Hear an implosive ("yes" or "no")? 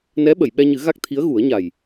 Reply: yes